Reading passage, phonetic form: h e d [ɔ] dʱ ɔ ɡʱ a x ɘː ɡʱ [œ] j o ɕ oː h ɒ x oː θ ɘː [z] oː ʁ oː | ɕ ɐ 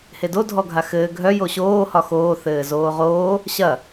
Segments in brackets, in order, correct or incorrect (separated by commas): incorrect, correct, correct